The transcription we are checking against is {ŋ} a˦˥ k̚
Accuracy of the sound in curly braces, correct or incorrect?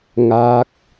correct